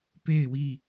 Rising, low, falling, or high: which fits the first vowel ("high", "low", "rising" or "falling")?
falling